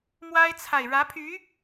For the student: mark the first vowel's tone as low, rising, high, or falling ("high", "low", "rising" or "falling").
high